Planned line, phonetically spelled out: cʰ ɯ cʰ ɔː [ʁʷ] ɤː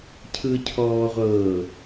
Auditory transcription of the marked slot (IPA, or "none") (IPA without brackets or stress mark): ʁʷ